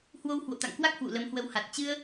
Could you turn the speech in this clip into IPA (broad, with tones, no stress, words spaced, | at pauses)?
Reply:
hwo˧whwo̰˧˨t̪a̰˧˨ŋkwa˦˥k̚ hwṵ˧˨lə˨˦mhwə˨˦wha˨˩t̚ t͡ɕɨ˧ə̯